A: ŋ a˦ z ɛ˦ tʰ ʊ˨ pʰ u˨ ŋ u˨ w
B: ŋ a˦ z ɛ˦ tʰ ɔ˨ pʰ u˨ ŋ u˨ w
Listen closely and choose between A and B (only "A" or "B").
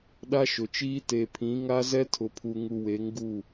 A